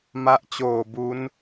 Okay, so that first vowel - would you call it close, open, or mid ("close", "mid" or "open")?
open